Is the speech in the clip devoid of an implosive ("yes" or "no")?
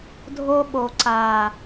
no